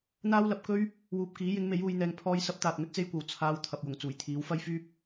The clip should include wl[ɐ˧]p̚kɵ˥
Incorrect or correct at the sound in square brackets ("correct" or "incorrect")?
correct